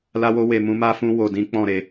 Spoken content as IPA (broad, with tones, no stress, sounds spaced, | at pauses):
l a˦ w o˦ w e˧ m ũ˦ m a˦ f ũ˦ w o˧ d ĩ˦ k͡p ɔ̃˦˨ ɾ e˧